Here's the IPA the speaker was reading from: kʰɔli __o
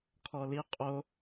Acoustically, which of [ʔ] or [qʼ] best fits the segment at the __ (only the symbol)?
qʼ